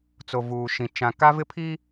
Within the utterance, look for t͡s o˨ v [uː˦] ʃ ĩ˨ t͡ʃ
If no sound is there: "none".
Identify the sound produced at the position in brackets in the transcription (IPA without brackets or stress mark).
uː˨